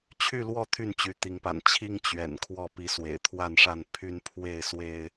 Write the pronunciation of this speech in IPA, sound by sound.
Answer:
t͡ɕʰ y˥˨ l w ɔ˥˨ t̪ʰ y˥˨ n t͡ɕ y˨˦ t̪ i˨˦ ŋ p a̰˨˩ n t͡ɕʰ i˦ ŋ t͡ɕ ɥ ɛ̰˨˩ n kʰ w ɔ˥˨ p i˨˦ s w ḛ˨˩ ɪ̯ t̪ʰ w a˥˨ n ʂ a˥˨ n pʰ y˦ n pʰ w e˥˨ ɪ̯ s w e˦ ɪ̯

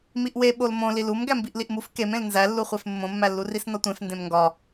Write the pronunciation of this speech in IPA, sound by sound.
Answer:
m i ʔ w e ɓ o l m õ l i l u m ɡ æ m b i ʔ l i ʔ m u f k e m ẽ l n z æ lː u χʷ e f mː õ mː æ lː u r i s n ɒ tʷ ẽ f n d ẽ m ŋ ɡ ɒ

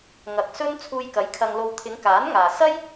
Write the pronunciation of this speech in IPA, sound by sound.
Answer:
ŋ ɐ˨ k̚ s ɵ˥ n t͡sʰ uː˧ j k ɐ˨˥ j kʰ ɐ˧ ŋ l o˧ w t̪ʰ ɪ˨˧ ŋ k aː˨˥ n ŋ aː˨ s ɐ˥ j

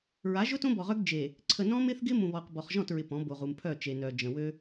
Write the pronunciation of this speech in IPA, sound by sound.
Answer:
ɹ a˨˦ ʒ ʊ˦ t õ˦ b ɔ˨ ʁ œ˦ ɡ d͡ʒ e˨ | ǀʰ ə˨ n ɔ̃˦ m ɪ˦ θ ɡ ɪ˦ m ũ˨ β ɔ˨ q b ɔ˨ χ ʒ ɔ̃˦˨ t ɹ ɪ˨ p ɔ̃˨˦ b o˨ ʁ u˨ m pʰ œ˦˨ t͡ʃ e˨ n œ˨ d͡ʒ ə̃˨ w ø˦

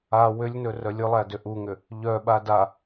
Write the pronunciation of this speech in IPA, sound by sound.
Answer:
a w ʏ lʲ n ɵ r œ lʲ ɵ lˠ æ d ʏ ʔ u ŋ ʏ | ʎ œ ɓ a d a

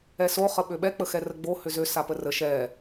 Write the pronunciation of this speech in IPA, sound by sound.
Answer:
ɛ s o χ ə ɓ ø ɓ ɛ k͡p ə x ɛ r ə ɡ͡b o h ʏ z ø s a p ə r ə ʃ ɛ

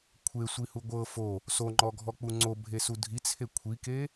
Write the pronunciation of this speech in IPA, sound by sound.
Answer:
kʷʰ e sʷ i h u ɡʷ ɤ f o | s o ŋ͡ǃ ɔ ɡʱ ɔ k͡p u ŋ͡ǀ o bʱ e s u dʱ i t͡sʰ e kʷʰ i k e

